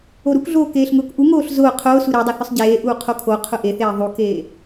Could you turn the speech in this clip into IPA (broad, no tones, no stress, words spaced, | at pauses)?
oɾukɮoː keːɬŋʊːkʔuŋoːɬ zʊː qʰʊː suɾedˤʊ θʊsˤɟeːʔuː qʰokʰoqʰʊ ʔeθeː ðˤukeː